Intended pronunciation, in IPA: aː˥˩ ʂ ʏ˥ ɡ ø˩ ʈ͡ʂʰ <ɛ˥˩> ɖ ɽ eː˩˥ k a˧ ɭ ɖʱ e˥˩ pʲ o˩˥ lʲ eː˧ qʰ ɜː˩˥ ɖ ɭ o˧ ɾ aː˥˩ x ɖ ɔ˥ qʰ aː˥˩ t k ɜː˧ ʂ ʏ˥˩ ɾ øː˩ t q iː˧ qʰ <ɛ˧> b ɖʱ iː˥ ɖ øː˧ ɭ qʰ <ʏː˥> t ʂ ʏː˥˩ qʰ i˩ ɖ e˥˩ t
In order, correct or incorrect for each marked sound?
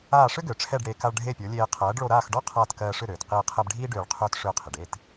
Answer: correct, correct, correct

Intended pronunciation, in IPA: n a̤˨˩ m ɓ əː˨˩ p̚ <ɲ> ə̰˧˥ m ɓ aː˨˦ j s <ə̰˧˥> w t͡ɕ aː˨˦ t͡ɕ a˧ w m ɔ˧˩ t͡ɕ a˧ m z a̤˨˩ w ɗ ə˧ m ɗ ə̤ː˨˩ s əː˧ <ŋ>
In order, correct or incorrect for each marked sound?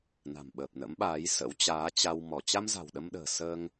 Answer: incorrect: n, correct, correct

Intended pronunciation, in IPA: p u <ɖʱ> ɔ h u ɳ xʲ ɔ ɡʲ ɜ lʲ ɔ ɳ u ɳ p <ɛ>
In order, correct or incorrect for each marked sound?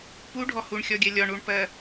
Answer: correct, incorrect: ɜ

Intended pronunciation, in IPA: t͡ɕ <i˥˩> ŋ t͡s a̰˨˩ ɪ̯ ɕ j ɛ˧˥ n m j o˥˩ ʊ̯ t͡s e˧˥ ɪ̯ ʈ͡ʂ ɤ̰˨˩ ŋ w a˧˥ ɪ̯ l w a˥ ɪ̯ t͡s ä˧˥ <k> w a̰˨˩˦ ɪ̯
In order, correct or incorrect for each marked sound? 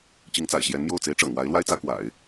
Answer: incorrect: i˧˥, correct

